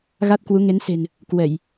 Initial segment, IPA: ɣ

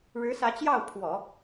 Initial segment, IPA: ɻ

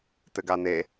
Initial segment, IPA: t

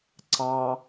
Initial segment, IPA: ǀ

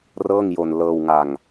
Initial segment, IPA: r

